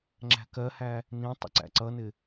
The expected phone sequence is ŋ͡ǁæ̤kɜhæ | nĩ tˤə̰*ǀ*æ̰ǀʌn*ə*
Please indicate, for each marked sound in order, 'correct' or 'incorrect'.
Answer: correct, incorrect: ɪ

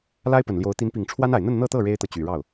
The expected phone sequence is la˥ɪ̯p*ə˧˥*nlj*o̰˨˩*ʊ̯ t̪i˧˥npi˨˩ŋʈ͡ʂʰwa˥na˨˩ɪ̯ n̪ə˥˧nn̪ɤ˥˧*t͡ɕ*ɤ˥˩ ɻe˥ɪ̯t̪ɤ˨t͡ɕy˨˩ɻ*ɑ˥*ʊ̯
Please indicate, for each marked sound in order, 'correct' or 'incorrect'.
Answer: incorrect: ə˨˩, incorrect: o˧˥, incorrect: t̪, incorrect: ɑ˥˩

